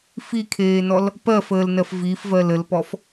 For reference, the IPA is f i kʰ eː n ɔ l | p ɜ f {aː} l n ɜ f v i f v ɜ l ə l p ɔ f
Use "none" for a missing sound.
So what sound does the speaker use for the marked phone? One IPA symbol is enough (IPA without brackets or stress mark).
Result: əː